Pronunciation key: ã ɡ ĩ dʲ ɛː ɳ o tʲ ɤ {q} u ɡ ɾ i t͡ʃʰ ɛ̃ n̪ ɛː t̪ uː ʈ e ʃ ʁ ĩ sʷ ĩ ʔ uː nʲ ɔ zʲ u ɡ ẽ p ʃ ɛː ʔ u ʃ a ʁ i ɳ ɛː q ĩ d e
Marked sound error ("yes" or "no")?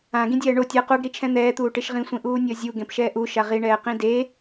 no